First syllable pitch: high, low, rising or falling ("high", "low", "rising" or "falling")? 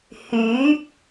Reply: rising